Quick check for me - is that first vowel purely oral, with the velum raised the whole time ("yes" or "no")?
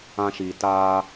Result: no